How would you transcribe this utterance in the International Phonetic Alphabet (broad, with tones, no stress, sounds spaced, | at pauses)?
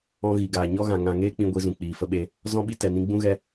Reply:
ɔ̃˧ ɣ i˨ ɡ aː˨ ɲ ɔ˦ ɣ ã˨ ŋ ã˨ ŋ eː˦ k͡p ĩ˧ ɡʷ i˧ z ũ˨ k͡p iː˨ f ə˦ ɓ e˦ | z ɔ̃˧ ɓ i˧ t ɛ˨ n ĩ˧ ɡ͡b ũ˦ ɣ ɛ˦